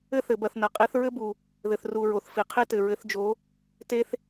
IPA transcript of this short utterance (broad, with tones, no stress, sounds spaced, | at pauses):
ɘ˥ θ ɘ˨ b ɐ˦˨ θ n ɐ˨ qʼ i˧˥ θ ɹ ɘ˥ b u˨ | ð ɘ˨ θ r u˨ ɹ o˨ θ f i˨ qʰ i˥ t ɘ˨ ɹ ɘ˧˥ θ d͡ʒ o˧˥ | t e˥ θ